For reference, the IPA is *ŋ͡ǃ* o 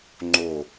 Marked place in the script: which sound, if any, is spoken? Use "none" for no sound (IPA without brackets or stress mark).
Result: ŋ͡ǃ